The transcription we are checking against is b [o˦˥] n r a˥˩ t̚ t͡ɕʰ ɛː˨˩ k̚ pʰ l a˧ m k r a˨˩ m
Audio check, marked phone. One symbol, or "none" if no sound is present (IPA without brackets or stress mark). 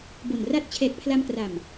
o˨˩